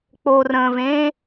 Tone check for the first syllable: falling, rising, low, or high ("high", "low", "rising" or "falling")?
low